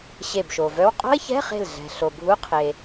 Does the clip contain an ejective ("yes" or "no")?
yes